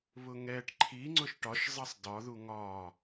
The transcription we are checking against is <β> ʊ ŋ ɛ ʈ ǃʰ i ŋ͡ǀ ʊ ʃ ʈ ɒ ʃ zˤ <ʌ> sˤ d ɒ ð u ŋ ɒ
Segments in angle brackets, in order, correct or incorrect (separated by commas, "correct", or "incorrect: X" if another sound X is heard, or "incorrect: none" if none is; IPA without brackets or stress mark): correct, correct